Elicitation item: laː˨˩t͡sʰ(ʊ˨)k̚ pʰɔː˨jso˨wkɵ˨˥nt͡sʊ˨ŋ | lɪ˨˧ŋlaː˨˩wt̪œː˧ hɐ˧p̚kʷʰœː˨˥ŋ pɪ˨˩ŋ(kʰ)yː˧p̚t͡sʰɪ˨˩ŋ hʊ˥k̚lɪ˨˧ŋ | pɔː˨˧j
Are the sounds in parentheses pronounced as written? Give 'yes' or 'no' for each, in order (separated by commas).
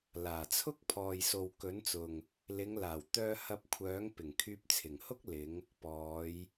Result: no, yes